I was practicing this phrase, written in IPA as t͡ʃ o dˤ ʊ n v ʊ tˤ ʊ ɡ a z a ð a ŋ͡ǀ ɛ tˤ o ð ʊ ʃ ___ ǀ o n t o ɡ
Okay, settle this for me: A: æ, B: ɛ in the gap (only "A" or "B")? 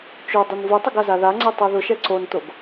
B